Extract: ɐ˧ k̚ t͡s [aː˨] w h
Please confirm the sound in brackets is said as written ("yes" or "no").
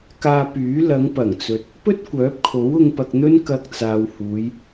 yes